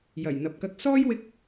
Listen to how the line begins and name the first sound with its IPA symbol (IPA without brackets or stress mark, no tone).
j